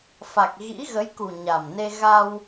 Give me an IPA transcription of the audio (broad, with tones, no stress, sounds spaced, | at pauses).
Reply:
f a˨˩ k̚ ɣ ḭ˧˥ ɣ ə˨˦ j k u˨˩ ɲ a˨˩ m n e˧ ɣ a˧ w